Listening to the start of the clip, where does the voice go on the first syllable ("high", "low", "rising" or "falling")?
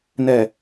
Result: low